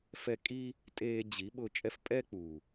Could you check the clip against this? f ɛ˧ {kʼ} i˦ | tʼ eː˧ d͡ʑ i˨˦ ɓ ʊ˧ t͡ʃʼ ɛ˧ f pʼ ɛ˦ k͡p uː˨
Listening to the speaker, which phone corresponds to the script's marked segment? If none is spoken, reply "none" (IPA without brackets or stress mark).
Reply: kʼ